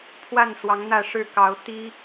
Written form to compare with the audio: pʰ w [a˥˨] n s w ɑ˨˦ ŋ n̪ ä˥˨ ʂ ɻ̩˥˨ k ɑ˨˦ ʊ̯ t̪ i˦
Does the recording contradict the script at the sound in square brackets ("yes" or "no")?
no